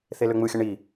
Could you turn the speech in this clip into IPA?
θ e l ø ŋ͡m ɯ xʲ ə ɳ i

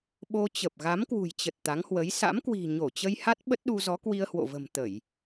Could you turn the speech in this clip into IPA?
ɓ o˧ t͡ɕ ə˨˩ p̚ ɣ a˨˦ m k w ṳ˨˩ j t͡ɕ ə˨˩ t̚ t̪ a˨˦ ŋ h w ə˨˦ j s a̰˧˥ m k w i̤˨˩ ɲ o˧˩ t͡ɕ ə˧ j h a˦˥ t̚ ɓ ə˦˥ t̚ ɗ u˧ z ɔ˨˦ k w i˧ ə̯ h w o̰˧˨ v ə̤˨˩ m t̪ ə˧˩˨ j

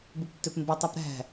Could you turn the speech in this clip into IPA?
b u p tː ø p m b e tˤ u p ɾ æ̤

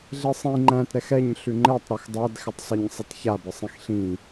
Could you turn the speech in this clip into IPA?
ɮ e sˤ ĩ ŋ͡ǃ æ̃ t ɾ ɛ x ɛ ɲ ɬ ʉ ŋ͡ǃ ɛ tˤ ɾ e x dˤ æ d x ɪ tˤ sˤ a ɲ sˤ i t ç a b ɪ sˤ ĩ x ɬ ĩ

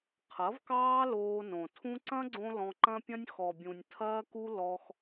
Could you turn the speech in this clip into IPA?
qʰ ɐ˨˦ v k ɑː˦ l oː˧ n õ˨ tʰ ũ˦ ǀ ɐ̃˦ ɡ͡ǀ õ˧ l ɔ̃˧ ǃ ɐ̃˦ pʲ ɐ̃˦ nʲ x ɔ˨ bʲ ũ˨ nʲ tʰ ɐː˦ k u˦ l ɔ˧ x

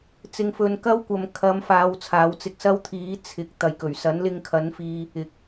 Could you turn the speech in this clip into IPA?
t͡s ɪ˧ ŋ f ɵ˧ n k ɐ˥ w kʷ ɐ˨ m kʰ ɐ˨˧ m f aː˨˧ w t͡sʰ aː˨˧ w t͡s ɪ˧ k̚ s ɐ˥ w t̪ʰ iː˨˥ t͡sʰ ɪ˨˥ k̚ t̪ ɐ˨ j k ɵ˨˩ ɥ s ɐ˨˥ n l ɪ˧ ŋ kʰ ɐ˨˥ n f iː˧ | ɪ˨ k̚

